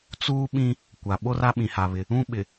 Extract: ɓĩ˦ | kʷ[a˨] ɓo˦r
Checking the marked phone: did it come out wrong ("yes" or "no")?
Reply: no